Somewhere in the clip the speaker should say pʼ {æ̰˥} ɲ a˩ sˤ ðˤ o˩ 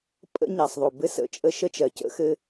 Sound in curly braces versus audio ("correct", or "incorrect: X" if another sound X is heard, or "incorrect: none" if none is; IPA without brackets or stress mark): incorrect: ə̰˥